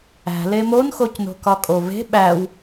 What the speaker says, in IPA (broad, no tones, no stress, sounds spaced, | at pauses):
æ̤ l e m o n x o c n o̤ k ɒ kʼ o v e̤ ɓ æ w